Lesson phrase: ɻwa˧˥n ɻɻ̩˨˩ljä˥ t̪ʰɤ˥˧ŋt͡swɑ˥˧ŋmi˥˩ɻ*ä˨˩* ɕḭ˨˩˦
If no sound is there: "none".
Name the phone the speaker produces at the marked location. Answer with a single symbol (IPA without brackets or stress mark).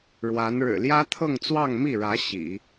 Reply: ä˧˥